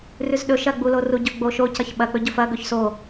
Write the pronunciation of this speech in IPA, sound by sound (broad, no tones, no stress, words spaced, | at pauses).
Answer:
rʉzɗɵ ʃɐɡ͡buloru ɟɵɡ͡boʃocɐç ɓɐk͡pɵ ɟɵfɐɡɵç so